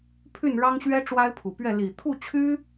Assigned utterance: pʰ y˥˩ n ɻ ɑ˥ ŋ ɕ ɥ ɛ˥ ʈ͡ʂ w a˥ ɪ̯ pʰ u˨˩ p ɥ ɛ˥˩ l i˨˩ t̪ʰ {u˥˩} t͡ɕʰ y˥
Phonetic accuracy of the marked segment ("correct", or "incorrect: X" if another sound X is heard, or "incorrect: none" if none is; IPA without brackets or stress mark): correct